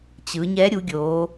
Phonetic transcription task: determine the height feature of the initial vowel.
high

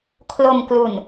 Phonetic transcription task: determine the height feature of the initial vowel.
mid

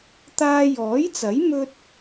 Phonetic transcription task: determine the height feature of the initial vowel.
low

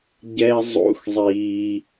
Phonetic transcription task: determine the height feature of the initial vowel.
mid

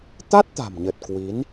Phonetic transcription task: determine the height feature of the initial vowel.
low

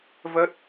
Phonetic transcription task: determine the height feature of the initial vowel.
mid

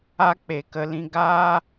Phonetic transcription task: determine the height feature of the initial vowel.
low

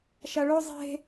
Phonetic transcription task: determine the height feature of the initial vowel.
low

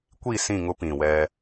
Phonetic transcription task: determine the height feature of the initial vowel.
high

